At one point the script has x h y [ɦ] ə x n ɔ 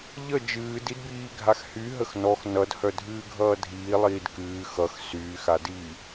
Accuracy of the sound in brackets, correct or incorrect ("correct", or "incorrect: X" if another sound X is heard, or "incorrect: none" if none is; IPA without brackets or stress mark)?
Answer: correct